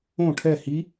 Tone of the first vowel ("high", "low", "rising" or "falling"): falling